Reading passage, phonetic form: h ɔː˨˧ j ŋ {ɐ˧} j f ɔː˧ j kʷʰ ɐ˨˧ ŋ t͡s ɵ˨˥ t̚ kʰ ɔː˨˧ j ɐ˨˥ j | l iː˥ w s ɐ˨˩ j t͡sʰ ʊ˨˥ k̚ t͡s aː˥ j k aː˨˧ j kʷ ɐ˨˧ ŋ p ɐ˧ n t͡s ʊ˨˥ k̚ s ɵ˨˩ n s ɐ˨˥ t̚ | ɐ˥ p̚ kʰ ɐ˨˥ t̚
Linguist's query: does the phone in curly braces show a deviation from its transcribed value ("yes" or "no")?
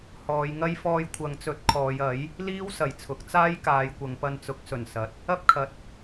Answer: yes